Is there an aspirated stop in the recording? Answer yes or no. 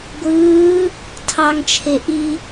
yes